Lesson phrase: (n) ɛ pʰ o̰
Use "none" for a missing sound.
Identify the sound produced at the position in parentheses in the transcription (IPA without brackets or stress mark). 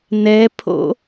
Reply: n